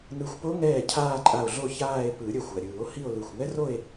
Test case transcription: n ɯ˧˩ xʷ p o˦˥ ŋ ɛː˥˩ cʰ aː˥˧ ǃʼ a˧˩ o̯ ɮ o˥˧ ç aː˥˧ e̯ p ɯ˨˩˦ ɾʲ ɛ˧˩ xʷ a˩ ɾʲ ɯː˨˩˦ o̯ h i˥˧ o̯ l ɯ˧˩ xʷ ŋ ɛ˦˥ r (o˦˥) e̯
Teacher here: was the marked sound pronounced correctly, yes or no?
no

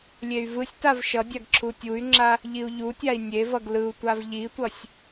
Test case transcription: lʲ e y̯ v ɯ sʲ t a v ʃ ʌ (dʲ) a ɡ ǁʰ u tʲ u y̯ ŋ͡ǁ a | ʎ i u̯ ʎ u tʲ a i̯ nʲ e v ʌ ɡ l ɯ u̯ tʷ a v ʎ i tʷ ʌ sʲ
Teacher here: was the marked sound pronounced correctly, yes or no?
yes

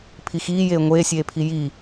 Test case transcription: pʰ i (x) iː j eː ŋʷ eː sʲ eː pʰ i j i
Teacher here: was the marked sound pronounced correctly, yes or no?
yes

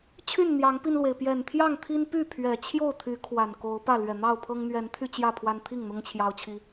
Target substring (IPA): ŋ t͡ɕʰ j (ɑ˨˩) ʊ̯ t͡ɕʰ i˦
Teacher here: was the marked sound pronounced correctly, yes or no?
no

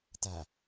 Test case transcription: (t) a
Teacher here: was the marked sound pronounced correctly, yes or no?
yes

